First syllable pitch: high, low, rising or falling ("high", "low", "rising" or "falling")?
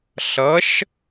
rising